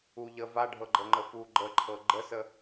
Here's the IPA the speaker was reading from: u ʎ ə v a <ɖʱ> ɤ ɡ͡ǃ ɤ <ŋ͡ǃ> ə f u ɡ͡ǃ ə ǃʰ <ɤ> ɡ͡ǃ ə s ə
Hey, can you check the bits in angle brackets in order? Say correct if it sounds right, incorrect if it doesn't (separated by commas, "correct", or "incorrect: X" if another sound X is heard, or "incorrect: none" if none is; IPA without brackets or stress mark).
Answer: correct, correct, correct